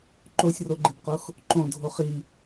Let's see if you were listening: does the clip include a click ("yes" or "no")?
yes